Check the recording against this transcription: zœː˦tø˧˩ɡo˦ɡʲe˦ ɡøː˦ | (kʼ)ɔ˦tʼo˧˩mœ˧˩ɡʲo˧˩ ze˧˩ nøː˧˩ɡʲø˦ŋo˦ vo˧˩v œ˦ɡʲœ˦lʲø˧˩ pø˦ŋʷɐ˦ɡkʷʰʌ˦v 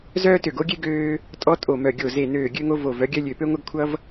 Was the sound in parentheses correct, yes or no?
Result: no